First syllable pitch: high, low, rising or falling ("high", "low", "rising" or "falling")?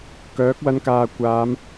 rising